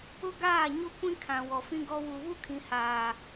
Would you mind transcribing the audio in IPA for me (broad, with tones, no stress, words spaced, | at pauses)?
ʊ˦ɡaː˦˨ɲo˦ kʷĩ˦kʰã˨ wɔ˨fĩ˦ɡɔ˦ wu˨βu˦kʰĩ˨haː˨